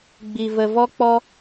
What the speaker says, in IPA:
ɡ͡b i˧ v ə˧ v ɔ˦ k͡p ɔ˦

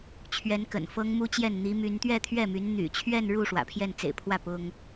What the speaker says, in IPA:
t͡ɕʰ ɥ ɛ˧˥ n k ə̰˨˩ n f ɤ˥ ŋ m u˥ t͡ɕ j ɛ˥˩ n n̪ i˧˥ m y˧˥ n t̪ ɥ ɛ˥˧ t̪ʰ ɥ ɛ˥˩ m y˧˥ n n̪ y̰˨˩ t͡ɕʰ ɥ ɛ˥˧ n ɻ u˥˩ ʂ w ä̰˨˩ pʰ j ɛ˥˩ n t͡s ḛ˨˩ ɪ̯ pʰ w ä˥˩ p ʊ˥ ŋ

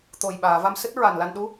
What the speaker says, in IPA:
t̪ o˨˩ j ɓ aː˨˩˨ v a˧ m s ɨ˦˥ t̚ ɹ a˨˩ n l a˧ n ɗ u˧˥

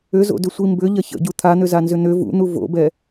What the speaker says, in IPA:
ʏ z o̰ d ʏ sʷ i m b ʏ ʎ ɐ ç ə̰ ɟ u t̪ʰ a n̪ ʏ z a n z ʏ n̪ ʏ v ṵ n̪ u v o̰ b ɛ

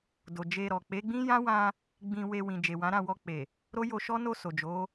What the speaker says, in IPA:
d o˨ d͡ʒ e˧ ɾ ɔ˨ k͡p e˨˦ ɡ͡b ĩ˦ j ã˦ w ã˧ | ɡ͡b ĩ˧ w e˧ w ĩ˨ d͡ʒ e˨ w ã˨˦ ɾ ã˦˨ w ɔ˧ k͡p e˨ | ɾ o˦ j o˧ ʃ ɔ˦ n o˦˨ s o˨ d͡ʒ o˨˦

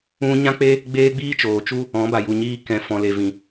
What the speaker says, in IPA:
ũ˦ ɲ ã˦ k͡p e˦ | ɡ͡b eː˦ ɡ͡b iː˦ t͡ʃ oː˨ t͡ʃ u˦ | ɔ̃˨˦ b a˨ j u˨ ɲ iː˧ k ɛ̃˨ f ɔ̃˨ l e˨ v ĩ˨

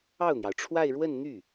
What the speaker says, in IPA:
ɑ˥˩ ʊ̯ n̪ j ɑ˩ ʊ̯ ʈ͡ʂʰ w a˥˧ ɪ̯ ɻ w ə˥˧ n n̪ y˥˩

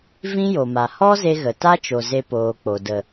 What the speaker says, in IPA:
v ĩ˦ j o˨ m a˨ h ɔ˦ z e˧ ɣ ə˨ t a˦ t͡ʃ o˨ z e˧ p oː˨ k͡p o˨ d ə˨

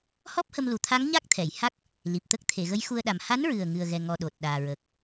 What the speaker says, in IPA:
h ɔ˦˥ p̚ h ə˧ m l u˨˩ t̪ʰ a˧˥ ŋ ɲ a˦˥ k̚ t̪ʰ ɛ˨˩˨ j h a˦˥ k̚ | l i˨˩ p̚ t̪ ə˦˥ k̚ t̪ʰ e˨˩˨ ɣ ə˧˥ j x u˧ ə̯ ɗ a˨˩ m h a˧˥ n ɹ ɨ˨˩ ə̯ ŋ ɨ˨˩ ə̯ ɣ ɛ˨˩ ŋ ɔ˨˩ ɗ o˨˩ t̚ ɗ aː˨˩ ɹ əː˨˩ k̚

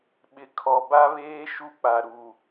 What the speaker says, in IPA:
ɓ ɪ˨ kʰ ɔ˨ b a˦ β eː˦ ʃ u˦ k͡p a˨ ɾ u˨

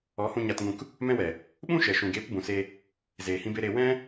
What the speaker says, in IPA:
ɔ˨˦ h ũ˧ ɲ a˧ t ŋ ũ˧ k | m ɛ̃˧ w ɛ˨ | ɓ ũ˦ ʃ ɛ˨ ʃ ũ˨ ɡ e˨˦ p b ũ˨ s e˧ | z eː˨ h ĩ˧ b e˧ ɾ e˧ w ɛ̃˦

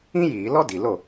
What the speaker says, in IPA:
ĩ˥ j iː˧˩˧ l ɔ˥ d i˨˩ l o˥˩

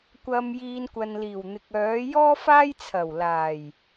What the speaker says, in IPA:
kʷ ɐ˨ m j iː˨ n kʷ ɐ˨ n l iː˨˩ w n̪ ɪ˨ k̚ œː˨˥ j ɔː˥ f aː˥ j t͡sʰ ɐ˨˩ w l aː˨˩ j

